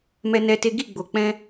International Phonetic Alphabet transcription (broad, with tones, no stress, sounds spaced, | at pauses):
m ɛ˦ n ɛ˦ t e˦ ɡ i˦˨ ɡ͡b o˨ k͡p ɛ̃˧